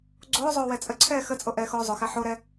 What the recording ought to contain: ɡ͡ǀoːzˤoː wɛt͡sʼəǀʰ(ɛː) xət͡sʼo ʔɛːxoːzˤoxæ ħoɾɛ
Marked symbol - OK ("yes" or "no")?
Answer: yes